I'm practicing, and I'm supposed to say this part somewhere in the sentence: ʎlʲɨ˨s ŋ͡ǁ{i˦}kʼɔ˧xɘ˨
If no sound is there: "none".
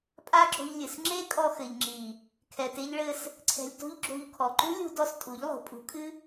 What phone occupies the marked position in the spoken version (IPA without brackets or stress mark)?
e˦